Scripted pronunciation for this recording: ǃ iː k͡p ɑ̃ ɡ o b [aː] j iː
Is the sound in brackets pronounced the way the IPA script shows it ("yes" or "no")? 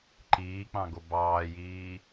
no